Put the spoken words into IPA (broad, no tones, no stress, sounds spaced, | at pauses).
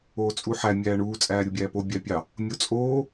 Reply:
oː t͡sʼ u ħ æ mʲ æː ɳ uː t͡sʼ æː ɾʲ u bʲ æː p o bʲ æ pʲ ɑ | mʲ o t͡sʼ oː